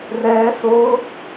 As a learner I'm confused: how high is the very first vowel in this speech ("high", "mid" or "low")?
mid